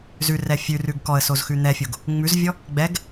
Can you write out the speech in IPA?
zʉrɛ fʲʉrʉɡ kɔə̯sozxʉ n̪ɛfʲoɡ | ŋ͡mʉzvʲɔ | ɡ͡bɛɡ

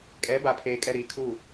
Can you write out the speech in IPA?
kʼɛ˨˦ba˨pʰeː˨ kʼɛ˨ ɾiː˨kʰu˦˨

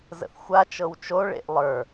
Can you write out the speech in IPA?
zə̰θxʷa t͡ʃɤwt͡ʃo ɭḛʔlˠə˞

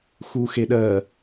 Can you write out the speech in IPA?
xuxeɗɜ

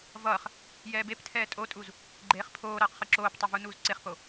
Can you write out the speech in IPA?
vʌːχ | jɛːbeptʰɛː tʼotʼuz | ɡ͡ǃeːχpʰoːɾʌːq χɯǁoːptˤʌ vunuːzǀeχpo

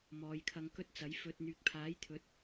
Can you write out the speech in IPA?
mɔː˨˧jkʰɐ˧ŋkɵ˥t̚t͡sɐ˨˥j fɵ˧t̚ n̪yː˨k̚pʰaː˨˥jt̪ʰɵ˨˥t̚

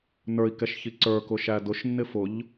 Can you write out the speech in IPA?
nə˞i̯kɛʃ çiǀə˞kʊ ʃædʊʃnːɪ fʊʎ

